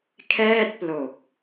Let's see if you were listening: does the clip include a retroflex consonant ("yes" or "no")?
no